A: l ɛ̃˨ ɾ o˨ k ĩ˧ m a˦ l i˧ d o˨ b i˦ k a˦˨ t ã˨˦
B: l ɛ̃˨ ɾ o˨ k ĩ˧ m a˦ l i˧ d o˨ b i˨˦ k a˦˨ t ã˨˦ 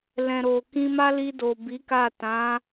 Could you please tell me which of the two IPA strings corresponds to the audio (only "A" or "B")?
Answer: B